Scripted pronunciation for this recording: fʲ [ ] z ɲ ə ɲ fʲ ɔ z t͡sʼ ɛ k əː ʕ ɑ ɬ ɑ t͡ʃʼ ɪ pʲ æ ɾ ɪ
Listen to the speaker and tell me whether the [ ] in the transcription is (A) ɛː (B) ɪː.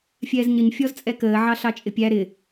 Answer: A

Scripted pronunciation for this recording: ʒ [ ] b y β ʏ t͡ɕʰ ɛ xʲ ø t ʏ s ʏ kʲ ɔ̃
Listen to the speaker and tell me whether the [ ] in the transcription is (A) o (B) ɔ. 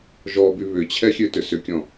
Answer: B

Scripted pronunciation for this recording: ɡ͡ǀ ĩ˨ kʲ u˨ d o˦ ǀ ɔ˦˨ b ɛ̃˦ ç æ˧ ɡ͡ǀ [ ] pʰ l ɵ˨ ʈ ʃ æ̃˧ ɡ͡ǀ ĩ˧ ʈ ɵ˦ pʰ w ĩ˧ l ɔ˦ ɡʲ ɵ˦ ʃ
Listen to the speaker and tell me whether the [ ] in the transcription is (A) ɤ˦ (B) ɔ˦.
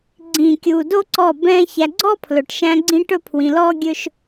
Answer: B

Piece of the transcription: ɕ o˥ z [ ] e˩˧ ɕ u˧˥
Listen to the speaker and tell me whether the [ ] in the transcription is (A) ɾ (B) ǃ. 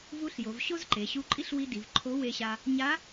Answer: B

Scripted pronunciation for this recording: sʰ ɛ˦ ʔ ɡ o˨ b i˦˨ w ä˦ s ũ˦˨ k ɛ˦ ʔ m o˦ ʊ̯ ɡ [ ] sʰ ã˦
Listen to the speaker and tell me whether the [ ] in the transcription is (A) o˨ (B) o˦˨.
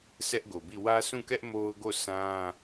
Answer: B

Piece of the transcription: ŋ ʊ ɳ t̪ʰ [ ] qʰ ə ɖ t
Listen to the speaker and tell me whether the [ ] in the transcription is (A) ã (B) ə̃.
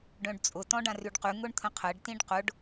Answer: B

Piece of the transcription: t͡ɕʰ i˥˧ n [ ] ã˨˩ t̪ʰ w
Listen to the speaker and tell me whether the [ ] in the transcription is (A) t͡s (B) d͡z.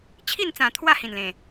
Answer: A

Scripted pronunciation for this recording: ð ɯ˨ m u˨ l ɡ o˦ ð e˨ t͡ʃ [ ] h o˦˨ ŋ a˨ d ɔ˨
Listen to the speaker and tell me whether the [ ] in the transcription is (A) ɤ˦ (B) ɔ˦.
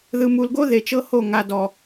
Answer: A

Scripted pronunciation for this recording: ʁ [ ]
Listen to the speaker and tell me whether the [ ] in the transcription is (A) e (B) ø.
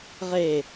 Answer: A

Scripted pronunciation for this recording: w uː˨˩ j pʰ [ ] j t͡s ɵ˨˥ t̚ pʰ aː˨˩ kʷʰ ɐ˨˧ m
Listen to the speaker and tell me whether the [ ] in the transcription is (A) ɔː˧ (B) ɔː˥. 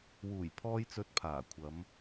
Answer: A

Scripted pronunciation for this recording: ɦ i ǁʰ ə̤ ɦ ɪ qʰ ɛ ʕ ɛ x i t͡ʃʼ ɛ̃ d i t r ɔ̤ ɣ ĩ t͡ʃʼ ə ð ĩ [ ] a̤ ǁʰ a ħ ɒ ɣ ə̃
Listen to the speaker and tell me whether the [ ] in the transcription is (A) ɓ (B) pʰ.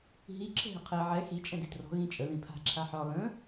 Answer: B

